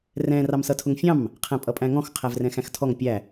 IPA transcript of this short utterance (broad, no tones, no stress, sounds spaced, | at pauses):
r ɛ̃ r ɑ m s ʌ tʰ ʊ ŋ fʲ ɑ̃ m | qʰ æ̃ pʼ ʌ pʼ æ̃ ŋ ɔ̃ x qʰ æ v r ɛ̃ x æ̃ x tʰ ɔ ŋ pʲ æ